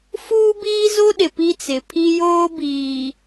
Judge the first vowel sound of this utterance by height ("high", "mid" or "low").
high